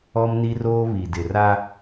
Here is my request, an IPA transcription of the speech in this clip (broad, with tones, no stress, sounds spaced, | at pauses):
ɔ˦ m n i˦ r oː˦ β i˨ d ɪ˨ r a˦